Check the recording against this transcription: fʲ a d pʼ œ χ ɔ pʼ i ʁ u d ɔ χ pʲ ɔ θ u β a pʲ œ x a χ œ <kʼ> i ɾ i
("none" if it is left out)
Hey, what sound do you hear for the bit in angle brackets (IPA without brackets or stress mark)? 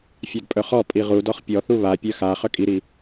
kʼ